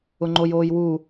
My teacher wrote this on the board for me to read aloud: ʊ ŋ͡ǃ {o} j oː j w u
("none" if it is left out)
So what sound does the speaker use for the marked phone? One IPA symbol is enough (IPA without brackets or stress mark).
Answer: o